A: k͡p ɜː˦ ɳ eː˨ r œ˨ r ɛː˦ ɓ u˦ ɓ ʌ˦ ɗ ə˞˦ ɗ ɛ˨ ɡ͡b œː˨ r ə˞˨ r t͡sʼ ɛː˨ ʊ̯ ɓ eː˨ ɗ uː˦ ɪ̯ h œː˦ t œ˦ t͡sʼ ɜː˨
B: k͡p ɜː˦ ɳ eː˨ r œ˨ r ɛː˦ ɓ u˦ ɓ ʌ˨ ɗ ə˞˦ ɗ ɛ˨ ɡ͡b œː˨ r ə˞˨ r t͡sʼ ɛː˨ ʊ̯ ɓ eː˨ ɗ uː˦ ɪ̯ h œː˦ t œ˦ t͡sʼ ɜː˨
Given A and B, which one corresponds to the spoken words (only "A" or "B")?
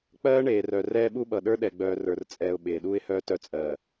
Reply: B